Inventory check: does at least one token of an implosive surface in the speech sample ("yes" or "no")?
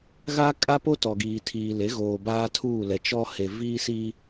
no